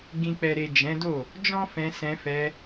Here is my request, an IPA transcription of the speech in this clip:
ɡ ĩ˨ k͡p ɛ˨ ɾ e˨ d͡ʒ ɛ̃˨˦ d o˦˨ | d͡ʒ ɔ̃˦ f ɛ̃˧ s ɛ̃˧ f ɛ˧

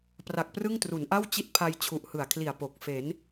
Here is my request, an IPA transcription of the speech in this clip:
p r a˨˩ k̚ p r ɯ˥˩ ŋ t r u˩˦ n ʔ a˥˩ w t͡ɕ i˦˥ t̚ pʰ a˧ j t͡ɕʰ u˨˩ ʔ h ɯ˨˩ a̯ kʰ l i˨˩ a̯ p o˨˩ k̚ f e˩˦ n

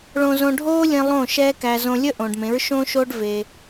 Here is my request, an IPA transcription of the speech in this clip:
ɭ õ˧ z õ˧ ɖʱ oː˦ lʲ ẽ˧ lˠ õ˦˨ ʃ ɛː˦ k æ˧ z õ˧ lʲ ə˦ ʔ õː˨ ɖ m ẽ˨˦ ɹ ʃ õː˦ ʃ oː˦ ɖ v e˧

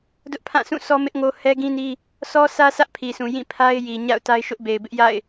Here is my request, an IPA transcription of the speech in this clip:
d ʊ˦ ʔ pʰ ã˦˨ sʰ ũ˦˨ s ɔ˦ m ɪ˦ ʔ ŋ o˦ h ɛ˦ ɡ ĩ˦ n i˦ | s ɔ˦ sʰ ä˦ sʰ ä˦ ʔ pʰ i˨ s ũ˨ j ĩ˦˨ pʰ a˦ ɪ̯ j i˨ ɲ a̰˦˨ ʊ̯ t a˦ ɪ̯ ʃ ʊ˦ ʔ b e˨ ɪ̯ b ɪ˦ ʔ j a̰˦˨ ɪ̯

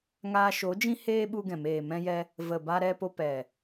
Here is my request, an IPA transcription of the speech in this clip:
ŋ aː˧ ʃ o˨˦ d͡ʒ ĩ˦ h eː˦ ɓ u˧ ɡ ɛ̃˨ m eː˨ m ɛ̃˧ j ɛ˧ | v ə˨ b a˧ ɾ ɛ˧ p o˧ p ɛ˨

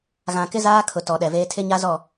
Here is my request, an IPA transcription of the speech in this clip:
ɣ ã˨ k ɪ˦ z aː˦ kʰ ʊ˨ t ɔ˨ ɗ ɛ˨ v eː˦ tʰ ɪ˦ ɲ a˦ z ɔ˦˨

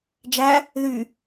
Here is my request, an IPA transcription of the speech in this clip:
d͡ʒ æ | ð y

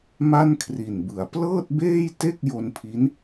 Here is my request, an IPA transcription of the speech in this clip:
m a˥˩ n kʰ r i˨˩ n b ɯ˨˩ a̯ p l ɤː˥˩ t̚ b eː˥˩ j t e˥˩ k̚ j o˧ n pʰ i˦˥ n

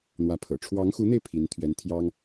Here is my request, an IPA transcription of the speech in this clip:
n̪ w ä˧˥ pʰ ɤ̰˨˩ ʈ͡ʂʰ w ɑ˧˥ ŋ x u˧˥ n̪ e˧ ɪ̯ pʰ i˧˥ n t̪ʰ ɥ ɛ˧˥ n t̪ʰ j ɑ˥ ŋ

